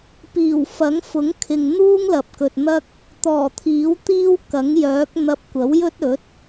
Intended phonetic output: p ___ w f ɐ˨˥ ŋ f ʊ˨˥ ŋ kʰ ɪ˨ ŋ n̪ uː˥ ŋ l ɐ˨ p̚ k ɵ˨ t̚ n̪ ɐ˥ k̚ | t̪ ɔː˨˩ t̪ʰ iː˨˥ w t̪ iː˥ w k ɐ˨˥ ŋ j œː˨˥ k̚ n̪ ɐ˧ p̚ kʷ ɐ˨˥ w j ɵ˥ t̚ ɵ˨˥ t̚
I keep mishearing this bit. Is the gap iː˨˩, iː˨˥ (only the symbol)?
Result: iː˨˩